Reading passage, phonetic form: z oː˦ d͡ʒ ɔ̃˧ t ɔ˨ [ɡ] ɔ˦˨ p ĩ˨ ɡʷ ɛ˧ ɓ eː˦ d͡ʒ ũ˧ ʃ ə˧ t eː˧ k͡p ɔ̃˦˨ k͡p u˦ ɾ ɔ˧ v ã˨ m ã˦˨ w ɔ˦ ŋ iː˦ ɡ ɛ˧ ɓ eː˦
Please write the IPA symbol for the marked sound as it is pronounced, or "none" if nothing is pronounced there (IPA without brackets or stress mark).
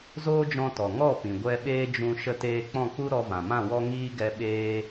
ŋ